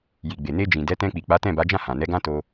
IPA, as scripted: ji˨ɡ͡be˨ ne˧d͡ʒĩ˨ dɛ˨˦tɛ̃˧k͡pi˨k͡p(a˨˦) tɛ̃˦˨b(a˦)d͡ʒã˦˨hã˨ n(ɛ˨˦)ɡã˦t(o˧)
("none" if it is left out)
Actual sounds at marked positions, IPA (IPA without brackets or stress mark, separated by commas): a˨˦, a˨˦, ɛ˨˦, o˧